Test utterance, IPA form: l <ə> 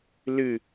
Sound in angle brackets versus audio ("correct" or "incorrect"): incorrect